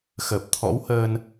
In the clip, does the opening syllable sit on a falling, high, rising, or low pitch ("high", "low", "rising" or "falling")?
low